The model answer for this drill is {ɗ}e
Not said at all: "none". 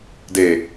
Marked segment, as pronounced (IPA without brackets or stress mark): d